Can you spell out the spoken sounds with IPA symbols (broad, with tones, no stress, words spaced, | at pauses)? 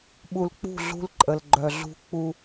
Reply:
ɓu˨lk͡pṳ˦˨ ɮṳ˦lǃʼə˨lɡ͡ǃœ˨ɮṳ˦ k͡pu˦